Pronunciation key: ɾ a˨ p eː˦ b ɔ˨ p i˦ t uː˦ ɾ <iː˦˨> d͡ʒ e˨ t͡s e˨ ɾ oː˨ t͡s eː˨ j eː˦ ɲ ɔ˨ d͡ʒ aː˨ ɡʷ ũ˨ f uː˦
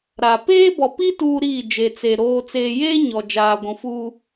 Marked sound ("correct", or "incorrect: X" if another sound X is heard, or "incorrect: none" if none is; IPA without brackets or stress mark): correct